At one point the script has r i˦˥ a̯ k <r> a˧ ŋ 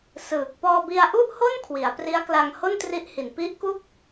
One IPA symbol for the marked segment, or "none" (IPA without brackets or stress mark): l